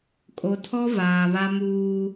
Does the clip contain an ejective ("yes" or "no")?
yes